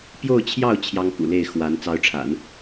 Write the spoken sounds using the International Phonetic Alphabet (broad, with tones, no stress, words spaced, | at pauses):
pjo˥˧ʊ̯t͡ɕʰjɑ˥˩ʊ̯ t͡ɕʰjɑ˥ŋkṵ˨˩le˥˩ɪ̯ xwa˧˥n t͡sɑ˧˥ʊ̯ʈ͡ʂʰa̰˨˩˦n